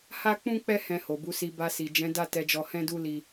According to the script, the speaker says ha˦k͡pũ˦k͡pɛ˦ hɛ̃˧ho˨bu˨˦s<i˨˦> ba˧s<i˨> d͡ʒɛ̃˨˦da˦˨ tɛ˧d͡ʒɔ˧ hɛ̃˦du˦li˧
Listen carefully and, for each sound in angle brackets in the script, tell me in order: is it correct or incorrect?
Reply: incorrect: i˧, correct

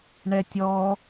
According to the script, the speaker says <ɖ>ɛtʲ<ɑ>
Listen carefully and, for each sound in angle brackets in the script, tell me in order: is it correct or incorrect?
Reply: incorrect: ɳ, incorrect: ɔ

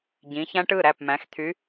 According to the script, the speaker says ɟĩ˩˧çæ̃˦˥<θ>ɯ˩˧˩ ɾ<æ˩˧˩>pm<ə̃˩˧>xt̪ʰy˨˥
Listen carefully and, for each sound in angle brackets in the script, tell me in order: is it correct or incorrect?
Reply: incorrect: ʈ, correct, incorrect: æ̃˩˧

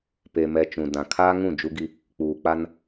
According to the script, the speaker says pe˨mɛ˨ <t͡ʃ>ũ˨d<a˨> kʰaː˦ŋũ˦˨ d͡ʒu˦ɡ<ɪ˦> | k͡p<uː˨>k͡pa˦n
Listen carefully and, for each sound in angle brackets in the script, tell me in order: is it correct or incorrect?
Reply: correct, incorrect: ã˨, incorrect: i˦, correct

